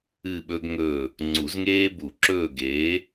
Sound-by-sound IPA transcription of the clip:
ɨ˦˨ ɓ ɵ˦ ɡ ŋ ɵː˦˨ | ŋ͡ǀ u˨˩˦ z ŋ eː˦ b u˨˩˦ ǁ ɵː˦˨ ɡ eː˨˥

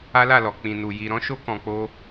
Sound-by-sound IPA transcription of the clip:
a˦ l a˦˨ l ɔ˨ k͡p ĩ˨ n u˨ j i˧ ɾ ɔ̃˦ ʃ o˦ k ɔ̃˧ k͡p o˦

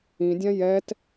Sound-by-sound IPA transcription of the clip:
ĩ dʲ ã j ɛ t

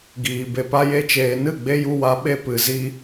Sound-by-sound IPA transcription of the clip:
ɡ iː˨ b e˨ p a˧ j e˧ t͡ʃ eː˨ n ɨ˦˨ ɡ͡b e˧ j u˧ w a˨˦ ɓ e˧ p ɨ˨ z i˦

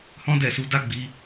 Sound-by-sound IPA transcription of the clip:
h ɔ̃˦ d ɛ˦˨ s u˧ d a˦ ɡ͡b i˧

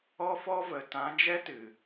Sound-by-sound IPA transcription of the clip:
ɔ˦ f ɔ˦ v ə˨ t ã˨˦ d͡ʒ ɛ˦ t ɨ˨

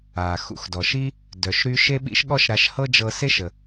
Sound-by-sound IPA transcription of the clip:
a˩ x ṵ˧ x d ɔ˩ ʃ i˥ | d œ˩ ʃ ɾ y˧ ʃ e˥ ɓ ḭ˥ ʃ ɠ ɔ˥ ʃ ɾ a˧ ʃ h ɤ˥ d͡ʒ ɤ˧ s e˥ ʃ ə˩

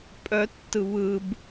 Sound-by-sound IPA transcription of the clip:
pʼ œ tː ɯ β ɯ b

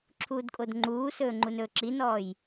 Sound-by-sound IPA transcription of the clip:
ǁʰ uː d kʼ o d ŋ͡ǃ uː s ɵː ŋ͡ǃ u n ɵː ǁ i n ɔː j

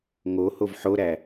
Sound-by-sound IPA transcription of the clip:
ŋ o h o v ħ o ɾ æ

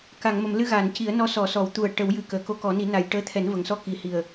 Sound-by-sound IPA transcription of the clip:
k a˨˩˨ ŋ m ə˨˩˨ m l ɨ˧ ɣ aː˨˩˨ n c i˨˩˦ ə̯ n ɔ˧˥ s ɔ˨˩˨ s ɔ˨˩˨ w t̪ u˨˩ ə̯ ʈ ə˨˩˦ w j ɨ˨˩ k əː˨˩˨ k o˧˥ k ɔ˨˩˦ n i˨˩˦ n a˨˩ j ʈ əː˧˥ t̪ʰ ɛ˨˩˦ n v ə˨˩ ŋ s ɔ˧ k i˨˩˨ h i˨˩ ə̯

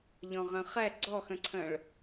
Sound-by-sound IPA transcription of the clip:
ʎ ɔ̃ ʁ ə̃ χ ɛ ɡ͡ǀ ɔ x ə̃ ǀʰ ə̃ ɭ

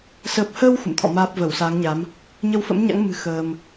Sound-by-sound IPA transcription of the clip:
s ə˨˩ p̚ h əː˧ w x ṵ˧˨ m t̪ʰ ɔ̰˧˨ m aː˦˥ p̚ v ə˧˩ w s aː˨˦ ŋ ɲ a˨˦ m | ɲ ə˧ w f ə̰˧˥ m ɲ a̰˧˥ ŋ m ɨ̤˨˩ x əː˧ m

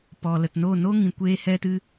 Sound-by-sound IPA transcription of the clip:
p ɔ˨ l ə˨ t n o˦˨ n o˦ ŋ ĩ˨ kʷ eː˦ h ɛ˦ t ɨ˦

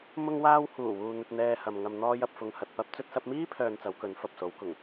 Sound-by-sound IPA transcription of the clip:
m ʊ˧ ŋ w aː˧ w h uː˨˩ w uː˨ n̪ ɵ˧ t̚ n̪ ɛː˧ h ɐ˨ m ŋ ɐ˨ m n̪ ɔː˧ j ɐ˨ p̚ f ʊ˨ ŋ h ɐ˨ t̚ p ɐ˧ p̚ t͡s ɵ˧ t̚ s ɐ˧ p̚ m iː˥ pʰ œː˧ n t͡s ɐ˨˧ w k ɵ˨˧ n f ɐ˨ p̚ s o˨˧ w k ʊ˨˩ ŋ

